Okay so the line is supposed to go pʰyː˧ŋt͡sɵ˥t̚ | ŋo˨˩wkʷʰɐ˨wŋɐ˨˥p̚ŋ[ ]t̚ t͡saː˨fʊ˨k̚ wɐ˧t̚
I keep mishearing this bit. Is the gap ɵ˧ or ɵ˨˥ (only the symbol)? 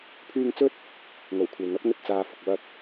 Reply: ɵ˧